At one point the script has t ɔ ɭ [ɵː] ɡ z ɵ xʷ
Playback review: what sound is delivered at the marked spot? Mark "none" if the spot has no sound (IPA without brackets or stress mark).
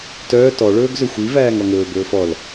ɵː